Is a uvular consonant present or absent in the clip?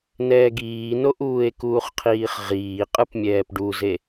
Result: present